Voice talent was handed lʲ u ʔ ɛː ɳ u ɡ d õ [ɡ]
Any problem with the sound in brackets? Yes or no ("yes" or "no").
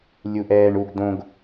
no